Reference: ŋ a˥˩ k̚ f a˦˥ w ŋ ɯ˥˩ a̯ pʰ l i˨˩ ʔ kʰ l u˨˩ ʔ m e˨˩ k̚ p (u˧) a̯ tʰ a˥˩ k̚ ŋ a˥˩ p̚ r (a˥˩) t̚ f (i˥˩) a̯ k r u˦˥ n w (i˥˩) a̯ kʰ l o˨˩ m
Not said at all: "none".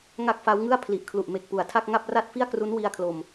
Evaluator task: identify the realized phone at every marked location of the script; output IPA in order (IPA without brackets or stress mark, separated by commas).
u˩˦, a˥˩, i˥˩, i˧